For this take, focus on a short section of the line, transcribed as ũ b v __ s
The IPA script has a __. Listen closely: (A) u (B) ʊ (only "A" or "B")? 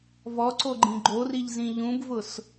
B